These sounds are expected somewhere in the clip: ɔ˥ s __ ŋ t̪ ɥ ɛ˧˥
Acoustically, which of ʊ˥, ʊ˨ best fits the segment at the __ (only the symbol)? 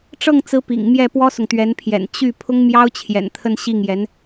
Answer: ʊ˨